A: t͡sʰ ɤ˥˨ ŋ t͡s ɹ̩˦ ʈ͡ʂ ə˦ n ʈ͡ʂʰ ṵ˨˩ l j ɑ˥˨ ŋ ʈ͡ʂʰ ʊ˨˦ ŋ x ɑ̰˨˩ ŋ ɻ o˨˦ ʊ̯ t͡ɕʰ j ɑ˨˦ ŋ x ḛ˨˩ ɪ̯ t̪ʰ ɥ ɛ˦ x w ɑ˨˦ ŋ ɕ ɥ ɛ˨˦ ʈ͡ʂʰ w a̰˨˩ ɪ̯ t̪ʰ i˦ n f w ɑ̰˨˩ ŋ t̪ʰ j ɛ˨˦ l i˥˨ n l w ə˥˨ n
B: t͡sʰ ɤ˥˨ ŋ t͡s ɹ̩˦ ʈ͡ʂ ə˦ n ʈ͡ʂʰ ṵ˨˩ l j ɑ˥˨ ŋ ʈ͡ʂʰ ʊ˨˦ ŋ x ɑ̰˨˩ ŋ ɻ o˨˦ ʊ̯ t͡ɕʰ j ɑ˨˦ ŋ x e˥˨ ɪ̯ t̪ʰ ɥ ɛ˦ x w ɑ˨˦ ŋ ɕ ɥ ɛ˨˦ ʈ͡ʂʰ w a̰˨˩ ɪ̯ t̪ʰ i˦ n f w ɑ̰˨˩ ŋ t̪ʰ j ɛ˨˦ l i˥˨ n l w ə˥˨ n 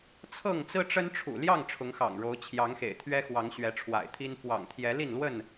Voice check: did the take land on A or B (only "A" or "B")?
A